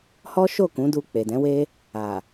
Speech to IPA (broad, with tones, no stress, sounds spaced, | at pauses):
h ɔ˦ ʃ o˦˨ k ũ˨˦ d u˧ k͡p e˨ d ɛ̃˨˦ w e˦ | a˨